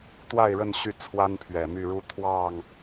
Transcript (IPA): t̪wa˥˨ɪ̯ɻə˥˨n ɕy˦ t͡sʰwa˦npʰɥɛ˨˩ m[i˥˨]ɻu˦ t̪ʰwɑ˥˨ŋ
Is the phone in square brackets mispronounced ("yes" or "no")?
yes